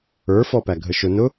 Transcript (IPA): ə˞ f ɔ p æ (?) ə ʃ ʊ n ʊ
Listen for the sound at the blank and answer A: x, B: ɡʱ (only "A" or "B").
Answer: B